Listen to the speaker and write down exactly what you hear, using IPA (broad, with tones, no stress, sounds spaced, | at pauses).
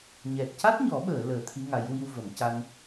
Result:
ɲ ɛ˨˩ t̚ c a˦˥ t̚ ɲ ɔ˨˩˦ ɓ əː˨˩˨ l əː˨˩˨ t̪ʰ i˧˥ ŋ a˨˩˦ j w i˧ w v ə˨˩˨ m c a˧ n